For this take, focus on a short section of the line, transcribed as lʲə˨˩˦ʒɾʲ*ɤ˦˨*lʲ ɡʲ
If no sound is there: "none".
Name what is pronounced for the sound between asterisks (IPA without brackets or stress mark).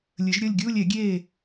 ɤ˦˨